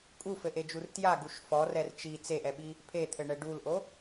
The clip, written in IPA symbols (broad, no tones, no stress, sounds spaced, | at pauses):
kʼ u f ɘ ʔ e d͡ʒ u r t j a ɡ u ʃ f ɔ r ɛ r t͡ʃ i t͡s e ʔ ɛ ɓ i | pʰ e t̪ʰ ɘ ɳ ɛ ɖ u l ʔ o